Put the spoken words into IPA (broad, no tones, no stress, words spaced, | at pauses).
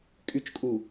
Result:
kʼyt͡ʃkʼu